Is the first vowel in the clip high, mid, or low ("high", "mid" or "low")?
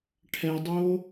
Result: mid